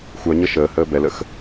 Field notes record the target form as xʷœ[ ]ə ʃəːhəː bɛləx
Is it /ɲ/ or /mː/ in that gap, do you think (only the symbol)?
ɲ